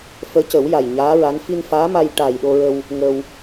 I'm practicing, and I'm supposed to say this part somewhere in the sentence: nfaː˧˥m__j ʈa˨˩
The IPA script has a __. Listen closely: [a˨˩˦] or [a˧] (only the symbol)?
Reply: a˧